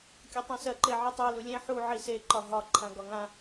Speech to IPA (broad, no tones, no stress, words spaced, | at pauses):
kʲɒtˤãsɜ ǃeʕitˤɛ lulʲẽ ħu ʕise ǃɒɦɒ ǃʰãɡɒŋã